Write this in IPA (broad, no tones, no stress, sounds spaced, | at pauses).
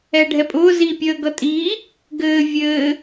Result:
ɛ ɖʱ ɛ pʼ ʊː z i pʲ əː ɡ ʌ tʼ iː | ɡ ɘː vʲ ɘː